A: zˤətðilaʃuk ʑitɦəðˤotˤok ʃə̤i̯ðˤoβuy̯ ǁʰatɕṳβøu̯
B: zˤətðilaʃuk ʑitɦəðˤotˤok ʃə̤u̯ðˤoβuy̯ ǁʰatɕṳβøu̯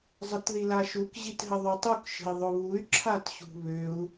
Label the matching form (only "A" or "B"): A